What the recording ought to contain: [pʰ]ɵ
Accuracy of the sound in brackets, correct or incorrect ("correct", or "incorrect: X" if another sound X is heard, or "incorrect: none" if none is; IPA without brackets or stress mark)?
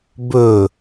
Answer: incorrect: b